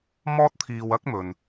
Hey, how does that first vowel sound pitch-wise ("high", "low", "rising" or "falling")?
high